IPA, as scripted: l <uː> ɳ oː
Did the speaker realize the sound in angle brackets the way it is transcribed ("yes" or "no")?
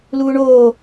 yes